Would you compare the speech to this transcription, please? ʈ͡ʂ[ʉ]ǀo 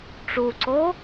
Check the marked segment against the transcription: incorrect: u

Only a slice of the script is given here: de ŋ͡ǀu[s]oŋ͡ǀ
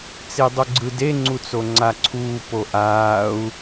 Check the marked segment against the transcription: incorrect: t͡s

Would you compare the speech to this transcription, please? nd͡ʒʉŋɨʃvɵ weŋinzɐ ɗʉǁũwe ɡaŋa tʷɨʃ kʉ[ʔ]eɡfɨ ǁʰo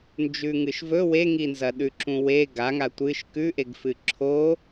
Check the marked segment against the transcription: correct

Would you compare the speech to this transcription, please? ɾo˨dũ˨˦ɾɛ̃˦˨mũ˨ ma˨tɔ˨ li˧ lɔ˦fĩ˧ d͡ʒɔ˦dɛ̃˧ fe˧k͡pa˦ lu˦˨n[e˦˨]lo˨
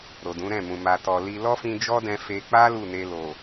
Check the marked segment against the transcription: incorrect: e˧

